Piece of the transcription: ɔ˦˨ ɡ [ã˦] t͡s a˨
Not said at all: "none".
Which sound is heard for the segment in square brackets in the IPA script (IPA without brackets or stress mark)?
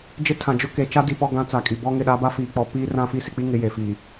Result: ã˦